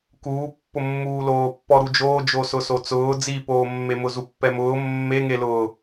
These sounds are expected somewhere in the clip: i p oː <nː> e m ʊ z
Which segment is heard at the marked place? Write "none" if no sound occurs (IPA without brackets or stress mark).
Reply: mː